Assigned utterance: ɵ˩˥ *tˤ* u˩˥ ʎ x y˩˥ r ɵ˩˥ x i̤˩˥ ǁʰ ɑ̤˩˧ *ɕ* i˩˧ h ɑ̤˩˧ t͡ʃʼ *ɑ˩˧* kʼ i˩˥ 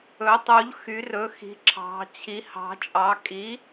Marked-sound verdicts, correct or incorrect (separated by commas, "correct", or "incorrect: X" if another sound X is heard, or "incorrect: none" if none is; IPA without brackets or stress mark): correct, incorrect: t͡ɕʰ, correct